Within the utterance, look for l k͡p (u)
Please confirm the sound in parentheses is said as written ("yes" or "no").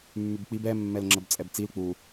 yes